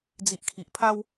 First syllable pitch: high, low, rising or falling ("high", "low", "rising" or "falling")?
low